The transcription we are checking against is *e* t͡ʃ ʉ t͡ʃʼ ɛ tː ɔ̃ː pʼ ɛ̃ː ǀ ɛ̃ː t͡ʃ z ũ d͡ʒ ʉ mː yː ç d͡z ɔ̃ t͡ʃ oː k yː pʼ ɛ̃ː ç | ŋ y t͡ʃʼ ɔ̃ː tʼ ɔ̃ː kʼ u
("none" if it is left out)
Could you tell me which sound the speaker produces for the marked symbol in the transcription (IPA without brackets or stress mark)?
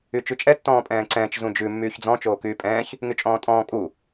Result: y